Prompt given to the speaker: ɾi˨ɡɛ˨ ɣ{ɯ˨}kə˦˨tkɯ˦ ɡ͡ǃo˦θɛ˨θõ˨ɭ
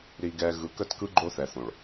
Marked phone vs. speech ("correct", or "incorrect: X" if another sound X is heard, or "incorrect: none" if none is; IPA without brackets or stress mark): correct